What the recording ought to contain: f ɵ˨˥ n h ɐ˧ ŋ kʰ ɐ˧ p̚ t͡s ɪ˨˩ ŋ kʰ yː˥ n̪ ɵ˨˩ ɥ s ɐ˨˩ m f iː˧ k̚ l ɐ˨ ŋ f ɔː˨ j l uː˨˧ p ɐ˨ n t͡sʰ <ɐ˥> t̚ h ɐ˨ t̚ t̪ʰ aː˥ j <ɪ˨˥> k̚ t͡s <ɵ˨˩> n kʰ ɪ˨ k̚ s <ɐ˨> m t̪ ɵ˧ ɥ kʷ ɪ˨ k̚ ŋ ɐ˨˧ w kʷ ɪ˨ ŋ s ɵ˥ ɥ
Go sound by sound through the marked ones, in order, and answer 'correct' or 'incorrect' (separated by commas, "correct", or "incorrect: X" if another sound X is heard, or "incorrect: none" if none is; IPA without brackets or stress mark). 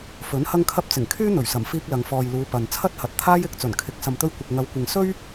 correct, correct, correct, correct